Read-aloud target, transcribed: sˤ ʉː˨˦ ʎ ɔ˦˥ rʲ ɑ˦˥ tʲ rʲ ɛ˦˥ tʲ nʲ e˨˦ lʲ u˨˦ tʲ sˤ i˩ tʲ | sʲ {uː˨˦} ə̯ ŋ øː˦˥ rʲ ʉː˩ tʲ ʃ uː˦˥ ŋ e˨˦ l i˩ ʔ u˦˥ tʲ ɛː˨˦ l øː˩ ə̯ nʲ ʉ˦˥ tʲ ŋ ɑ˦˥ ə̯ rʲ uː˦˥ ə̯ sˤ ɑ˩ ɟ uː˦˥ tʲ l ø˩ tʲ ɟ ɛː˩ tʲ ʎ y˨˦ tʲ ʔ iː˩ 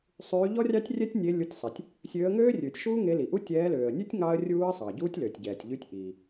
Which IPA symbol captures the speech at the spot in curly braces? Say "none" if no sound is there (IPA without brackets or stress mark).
øː˨˦